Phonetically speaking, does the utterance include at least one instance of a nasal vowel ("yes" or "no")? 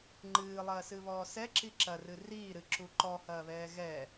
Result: no